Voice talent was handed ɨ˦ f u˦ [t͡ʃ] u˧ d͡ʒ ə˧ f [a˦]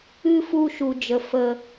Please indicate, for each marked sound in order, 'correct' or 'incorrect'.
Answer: incorrect: ʃ, incorrect: ə˦

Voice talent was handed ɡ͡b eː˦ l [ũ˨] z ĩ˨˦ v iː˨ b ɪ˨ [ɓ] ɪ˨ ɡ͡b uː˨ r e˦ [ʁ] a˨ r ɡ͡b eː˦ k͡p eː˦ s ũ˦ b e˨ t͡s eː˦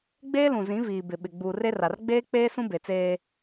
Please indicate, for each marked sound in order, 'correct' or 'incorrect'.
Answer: correct, correct, incorrect: r

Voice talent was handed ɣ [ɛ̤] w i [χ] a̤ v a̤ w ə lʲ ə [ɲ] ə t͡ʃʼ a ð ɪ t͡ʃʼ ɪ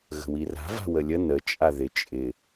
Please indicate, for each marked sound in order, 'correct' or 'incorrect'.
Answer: incorrect: ə̤, incorrect: r, incorrect: n

